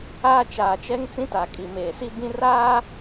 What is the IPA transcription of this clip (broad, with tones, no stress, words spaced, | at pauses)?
aː˦ t͡ʃaː˨t͡ʃɛ˦ŋ t͡sĩ˦ta˨kʼi˨ meː˨si˦bĩ˦ raː˦